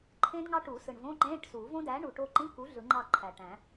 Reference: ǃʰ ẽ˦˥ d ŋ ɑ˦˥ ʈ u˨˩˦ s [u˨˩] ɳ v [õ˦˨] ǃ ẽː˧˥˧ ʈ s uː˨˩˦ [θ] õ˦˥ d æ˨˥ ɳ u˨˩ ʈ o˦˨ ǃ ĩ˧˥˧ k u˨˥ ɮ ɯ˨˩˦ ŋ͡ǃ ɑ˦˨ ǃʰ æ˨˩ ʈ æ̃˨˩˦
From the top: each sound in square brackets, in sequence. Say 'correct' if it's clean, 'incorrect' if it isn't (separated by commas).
incorrect, incorrect, incorrect